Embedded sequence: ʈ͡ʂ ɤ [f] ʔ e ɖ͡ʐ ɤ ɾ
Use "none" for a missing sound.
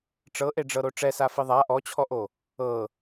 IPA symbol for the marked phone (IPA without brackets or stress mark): none